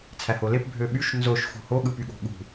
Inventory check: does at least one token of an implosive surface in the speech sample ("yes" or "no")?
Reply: yes